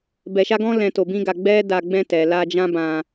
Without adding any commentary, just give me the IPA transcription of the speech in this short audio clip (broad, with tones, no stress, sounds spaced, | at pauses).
b ɛ˧ ʃ a˦ ɡ ɔ̃˦ l ɛ̃˧ t o˧ b ĩ˦ ɡ a˧ ɡ͡b ɛ˦ d a˧ ɡ͡b ɛ̃˧ t ɛ˨ l a˧ d͡ʒ ã˦ b ã˧